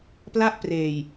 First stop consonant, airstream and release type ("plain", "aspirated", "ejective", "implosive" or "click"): plain